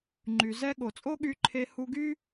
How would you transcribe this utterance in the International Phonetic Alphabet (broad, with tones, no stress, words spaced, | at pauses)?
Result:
ŋ͡ǃy˩ zɛ˥ ɠo˩t͡sʼo˥ɠy˧ǃʰe˧ hu˧ɡy˥